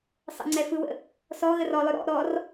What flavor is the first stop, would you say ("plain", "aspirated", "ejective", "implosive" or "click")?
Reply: click